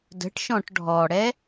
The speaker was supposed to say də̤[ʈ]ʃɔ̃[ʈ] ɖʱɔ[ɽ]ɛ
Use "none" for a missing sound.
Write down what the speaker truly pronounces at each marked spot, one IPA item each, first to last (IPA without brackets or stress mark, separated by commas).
ʈ, ʈ, ɽ